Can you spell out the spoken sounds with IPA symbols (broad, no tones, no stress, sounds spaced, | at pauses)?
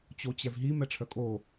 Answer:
t͡ɕ o t͡ɕ ɛ v ɦ i m ɛ ʈ͡ʂʰ œ kʼ o